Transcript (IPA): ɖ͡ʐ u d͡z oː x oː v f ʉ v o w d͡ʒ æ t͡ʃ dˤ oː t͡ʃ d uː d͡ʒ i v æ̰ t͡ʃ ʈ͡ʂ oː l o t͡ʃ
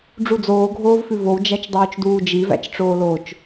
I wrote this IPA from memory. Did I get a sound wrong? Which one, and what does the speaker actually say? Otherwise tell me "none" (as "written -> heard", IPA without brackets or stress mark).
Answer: x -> ɡʱ